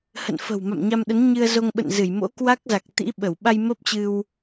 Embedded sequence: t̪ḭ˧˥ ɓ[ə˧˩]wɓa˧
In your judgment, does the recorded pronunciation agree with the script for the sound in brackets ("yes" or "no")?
yes